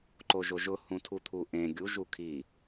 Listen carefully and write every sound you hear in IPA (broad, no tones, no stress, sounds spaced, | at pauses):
ǃ o ʒ o ʒ ʊ h ũ tʰ u t̪ʰ u ʔ ẽ ɡʲ u ʒ u kʰ i